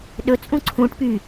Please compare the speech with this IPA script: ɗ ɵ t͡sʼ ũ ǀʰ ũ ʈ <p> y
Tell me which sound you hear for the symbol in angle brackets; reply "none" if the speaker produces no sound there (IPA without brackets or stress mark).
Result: p